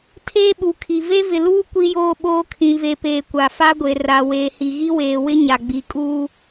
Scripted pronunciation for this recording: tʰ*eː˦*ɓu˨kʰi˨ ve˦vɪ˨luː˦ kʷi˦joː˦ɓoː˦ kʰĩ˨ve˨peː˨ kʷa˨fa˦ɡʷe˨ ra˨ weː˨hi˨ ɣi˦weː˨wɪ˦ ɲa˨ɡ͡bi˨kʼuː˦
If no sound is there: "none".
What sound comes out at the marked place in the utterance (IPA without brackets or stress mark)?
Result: eː˦